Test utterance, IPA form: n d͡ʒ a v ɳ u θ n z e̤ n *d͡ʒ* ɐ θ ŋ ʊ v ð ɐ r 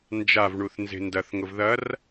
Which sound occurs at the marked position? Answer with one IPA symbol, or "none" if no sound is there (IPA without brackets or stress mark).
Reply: d